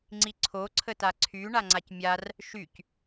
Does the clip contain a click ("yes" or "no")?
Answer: yes